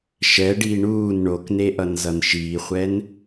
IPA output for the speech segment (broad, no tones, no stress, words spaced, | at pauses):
ʃɛɖiː ɳuːn ɳokneʔʌnzʌn ʃiːχʷɛn